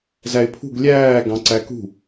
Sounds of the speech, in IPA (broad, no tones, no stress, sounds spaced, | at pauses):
z æ ɪ̯ pʰ ṳ ɡ lʲ æː ɡ ɑ̃ ǀ æ k ṳ